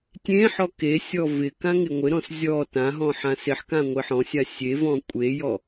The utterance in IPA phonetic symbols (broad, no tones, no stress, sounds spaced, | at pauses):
tʲ ẽ ħ ɔ k e sʲ ɔ v ɪ k ã ŋ ɪ ŋʷ ɪ ɾ ɔ̃ s zʲ ɔ t ã ɦ ɔ̃ ħ ã s ɪ ħ k ã ŋʷ ɪ ħ ɔ̃ sʲ a sʲ e v ɔ̃ kʷʼ e j ɔ